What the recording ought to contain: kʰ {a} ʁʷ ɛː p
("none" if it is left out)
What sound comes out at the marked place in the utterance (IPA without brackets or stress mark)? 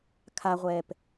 a